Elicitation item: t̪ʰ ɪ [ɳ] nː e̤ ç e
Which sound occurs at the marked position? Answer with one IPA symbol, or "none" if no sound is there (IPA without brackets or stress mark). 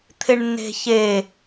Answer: ɳ